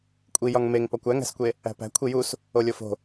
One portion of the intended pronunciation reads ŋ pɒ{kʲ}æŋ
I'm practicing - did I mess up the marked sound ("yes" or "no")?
yes